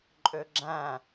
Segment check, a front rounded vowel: present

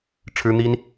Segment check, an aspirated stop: present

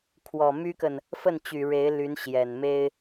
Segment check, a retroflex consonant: present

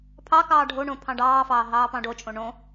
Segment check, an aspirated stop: present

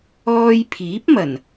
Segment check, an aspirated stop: present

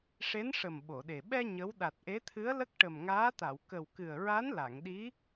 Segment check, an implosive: present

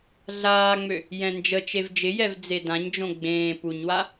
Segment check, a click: absent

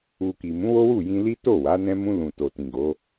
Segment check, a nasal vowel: present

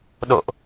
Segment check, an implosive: present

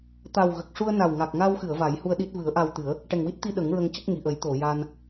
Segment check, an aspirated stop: absent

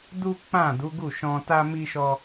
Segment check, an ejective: absent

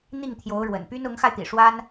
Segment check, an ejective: absent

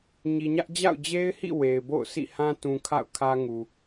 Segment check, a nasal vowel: present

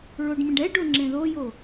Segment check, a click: present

